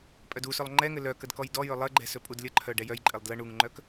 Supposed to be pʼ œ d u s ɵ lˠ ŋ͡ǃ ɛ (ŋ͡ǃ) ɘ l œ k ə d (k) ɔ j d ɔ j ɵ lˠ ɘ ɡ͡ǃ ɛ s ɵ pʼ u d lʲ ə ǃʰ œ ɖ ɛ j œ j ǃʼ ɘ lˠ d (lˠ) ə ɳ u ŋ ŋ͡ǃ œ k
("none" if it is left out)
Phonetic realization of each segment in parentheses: ŋ, k, l

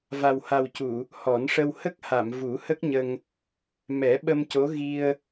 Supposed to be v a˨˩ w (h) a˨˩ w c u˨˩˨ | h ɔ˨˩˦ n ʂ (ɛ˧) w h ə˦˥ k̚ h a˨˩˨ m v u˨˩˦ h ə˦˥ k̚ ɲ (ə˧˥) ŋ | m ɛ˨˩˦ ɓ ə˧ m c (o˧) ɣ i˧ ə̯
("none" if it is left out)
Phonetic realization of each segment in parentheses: h, ə˧, ə˧, o˧˥

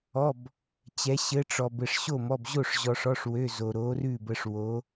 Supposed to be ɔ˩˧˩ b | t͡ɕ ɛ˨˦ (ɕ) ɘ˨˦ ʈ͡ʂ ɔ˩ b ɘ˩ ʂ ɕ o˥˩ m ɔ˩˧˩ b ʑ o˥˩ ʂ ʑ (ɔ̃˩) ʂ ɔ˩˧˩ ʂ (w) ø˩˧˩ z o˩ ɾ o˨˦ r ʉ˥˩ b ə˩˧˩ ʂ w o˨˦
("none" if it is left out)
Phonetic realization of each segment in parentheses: ɕ, ɔ˩, w

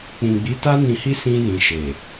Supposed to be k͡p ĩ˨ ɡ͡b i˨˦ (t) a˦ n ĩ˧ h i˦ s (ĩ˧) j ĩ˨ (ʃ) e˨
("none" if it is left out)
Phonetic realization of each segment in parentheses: t, ĩ˧, ʃ

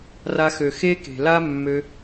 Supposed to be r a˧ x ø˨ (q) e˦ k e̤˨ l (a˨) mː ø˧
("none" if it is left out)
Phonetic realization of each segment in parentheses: x, a˦

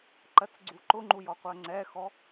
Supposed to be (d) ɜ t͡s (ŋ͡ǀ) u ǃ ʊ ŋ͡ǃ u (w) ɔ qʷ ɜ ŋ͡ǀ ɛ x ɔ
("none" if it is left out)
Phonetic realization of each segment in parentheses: ǃ, ɡ͡ǀ, j

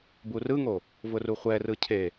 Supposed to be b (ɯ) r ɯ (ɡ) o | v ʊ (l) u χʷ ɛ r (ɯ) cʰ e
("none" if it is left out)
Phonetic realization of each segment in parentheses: u, ŋ, r, ɯ

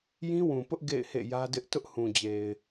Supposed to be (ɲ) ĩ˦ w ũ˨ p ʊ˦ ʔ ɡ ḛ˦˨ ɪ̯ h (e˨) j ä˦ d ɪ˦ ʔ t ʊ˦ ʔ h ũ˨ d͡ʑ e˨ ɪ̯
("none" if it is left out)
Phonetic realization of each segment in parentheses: j, ḛ˦˨

